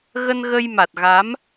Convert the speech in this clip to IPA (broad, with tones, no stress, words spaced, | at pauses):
ɣə˧nɣə˧jma˨˩t̚ ɣa˨˦m